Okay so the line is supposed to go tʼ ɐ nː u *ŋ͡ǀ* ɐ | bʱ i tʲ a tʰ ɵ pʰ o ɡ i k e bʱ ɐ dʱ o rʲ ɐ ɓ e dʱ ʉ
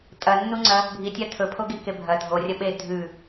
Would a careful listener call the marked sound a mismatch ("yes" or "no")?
no